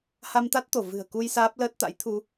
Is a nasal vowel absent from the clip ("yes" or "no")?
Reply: yes